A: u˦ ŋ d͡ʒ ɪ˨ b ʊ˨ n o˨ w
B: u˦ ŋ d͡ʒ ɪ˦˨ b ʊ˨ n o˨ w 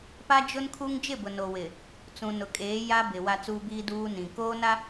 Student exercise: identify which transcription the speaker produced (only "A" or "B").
B